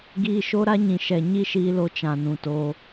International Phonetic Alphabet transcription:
ɡ iː˧ ʃ o˦ ɾ a˦ ɲ ĩ˨ ʃ ɛ˨ ɲ i˦ ʃ iː˧ l o˧ t͡ʃ ã˨ n ũ˨ t oː˧

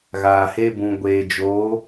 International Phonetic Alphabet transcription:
ɣ aː˨ h e˧ b ũ˨ ɡʷ eː˨ d͡ʒ oː˨˦

